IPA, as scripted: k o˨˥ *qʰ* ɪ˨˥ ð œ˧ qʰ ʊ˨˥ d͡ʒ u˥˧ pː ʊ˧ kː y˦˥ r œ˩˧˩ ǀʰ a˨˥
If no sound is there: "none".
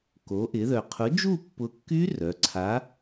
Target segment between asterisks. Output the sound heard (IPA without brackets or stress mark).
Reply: ʔ